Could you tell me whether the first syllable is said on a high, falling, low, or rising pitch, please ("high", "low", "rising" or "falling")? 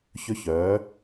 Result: high